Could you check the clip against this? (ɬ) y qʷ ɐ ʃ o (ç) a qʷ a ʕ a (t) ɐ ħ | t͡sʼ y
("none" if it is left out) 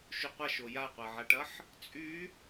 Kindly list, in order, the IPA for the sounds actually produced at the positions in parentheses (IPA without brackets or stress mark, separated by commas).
ʃ, j, ʈ